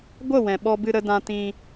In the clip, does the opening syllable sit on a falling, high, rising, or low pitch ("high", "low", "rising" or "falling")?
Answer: falling